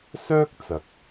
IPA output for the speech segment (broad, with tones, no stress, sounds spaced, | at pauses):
s œː˥ k̚ t͡s ɐ˨˥ k̚